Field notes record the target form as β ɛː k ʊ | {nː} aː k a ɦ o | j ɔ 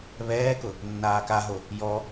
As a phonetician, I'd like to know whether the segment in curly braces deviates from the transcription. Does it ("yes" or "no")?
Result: no